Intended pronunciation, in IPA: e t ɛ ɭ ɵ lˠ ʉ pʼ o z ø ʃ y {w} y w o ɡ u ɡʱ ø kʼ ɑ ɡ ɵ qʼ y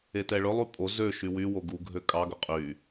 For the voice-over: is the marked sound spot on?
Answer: yes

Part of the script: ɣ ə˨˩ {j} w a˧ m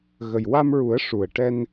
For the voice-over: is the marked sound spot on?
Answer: yes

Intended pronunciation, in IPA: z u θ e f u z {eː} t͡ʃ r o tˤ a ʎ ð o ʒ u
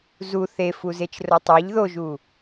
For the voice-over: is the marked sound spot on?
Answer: no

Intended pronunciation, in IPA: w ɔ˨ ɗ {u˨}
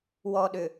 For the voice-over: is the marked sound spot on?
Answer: no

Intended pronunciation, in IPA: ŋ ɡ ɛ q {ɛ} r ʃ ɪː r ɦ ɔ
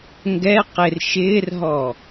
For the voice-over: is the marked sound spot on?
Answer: no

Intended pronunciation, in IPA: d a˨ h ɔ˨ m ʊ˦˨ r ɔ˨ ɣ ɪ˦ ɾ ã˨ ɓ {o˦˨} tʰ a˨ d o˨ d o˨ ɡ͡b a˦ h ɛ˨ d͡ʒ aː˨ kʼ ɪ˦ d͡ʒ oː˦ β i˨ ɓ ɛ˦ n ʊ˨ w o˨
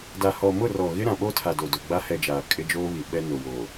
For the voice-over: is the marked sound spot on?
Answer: no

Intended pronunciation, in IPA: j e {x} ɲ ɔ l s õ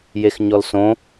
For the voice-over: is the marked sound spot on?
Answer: yes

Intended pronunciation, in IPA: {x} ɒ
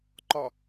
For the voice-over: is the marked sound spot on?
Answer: no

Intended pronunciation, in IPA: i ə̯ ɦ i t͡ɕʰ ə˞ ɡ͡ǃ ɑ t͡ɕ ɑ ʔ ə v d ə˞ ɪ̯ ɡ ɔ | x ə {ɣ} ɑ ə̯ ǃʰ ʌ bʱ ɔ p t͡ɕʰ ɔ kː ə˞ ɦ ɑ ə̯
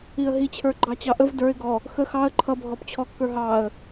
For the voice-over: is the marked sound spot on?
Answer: no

